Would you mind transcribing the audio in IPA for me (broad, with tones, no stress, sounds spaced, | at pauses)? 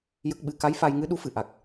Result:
j ə˦˥ k̚ ɓ ɨ˧˥ k a˧˥ j f a˧ j ŋ ɨ˧˥ ɗ u˧˥ f ɨ˨˩˨ ʔ a˨˩ k̚